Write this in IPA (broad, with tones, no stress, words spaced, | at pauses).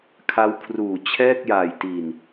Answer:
kʰa˦˥wkʰruː˨˩ t͡ɕʰɛː˥˩k̚jaː˨˩jti˨˩n